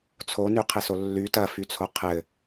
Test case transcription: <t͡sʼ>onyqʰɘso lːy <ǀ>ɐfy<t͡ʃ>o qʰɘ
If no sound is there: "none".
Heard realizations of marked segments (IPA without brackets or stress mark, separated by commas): t͡sʰ, t, t͡sʰ